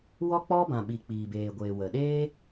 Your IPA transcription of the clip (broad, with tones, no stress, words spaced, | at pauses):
wɔ˦k͡pɔ˦bã˨ɓi˨ k͡piː˨beː˨ɡʷeː˨wə˨ ɗeː˦